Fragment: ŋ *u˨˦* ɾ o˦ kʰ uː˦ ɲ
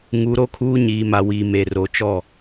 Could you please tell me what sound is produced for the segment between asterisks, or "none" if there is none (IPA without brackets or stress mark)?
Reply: u˨˦